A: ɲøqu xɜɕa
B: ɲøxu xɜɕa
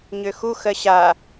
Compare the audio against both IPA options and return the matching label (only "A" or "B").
B